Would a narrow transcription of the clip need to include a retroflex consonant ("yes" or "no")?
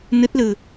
no